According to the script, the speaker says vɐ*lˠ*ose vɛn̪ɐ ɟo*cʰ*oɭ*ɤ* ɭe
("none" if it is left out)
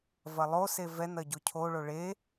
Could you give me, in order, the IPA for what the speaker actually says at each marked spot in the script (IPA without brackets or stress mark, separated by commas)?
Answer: lˠ, cʰ, o